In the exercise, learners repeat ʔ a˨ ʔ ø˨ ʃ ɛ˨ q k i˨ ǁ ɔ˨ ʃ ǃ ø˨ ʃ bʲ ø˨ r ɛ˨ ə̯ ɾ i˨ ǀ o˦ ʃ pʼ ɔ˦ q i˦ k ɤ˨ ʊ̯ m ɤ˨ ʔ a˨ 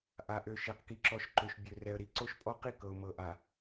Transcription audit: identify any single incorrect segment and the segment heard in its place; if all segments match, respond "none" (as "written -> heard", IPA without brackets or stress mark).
none